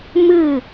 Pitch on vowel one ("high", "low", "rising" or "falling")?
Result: falling